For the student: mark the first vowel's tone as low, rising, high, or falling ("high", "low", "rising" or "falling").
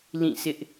falling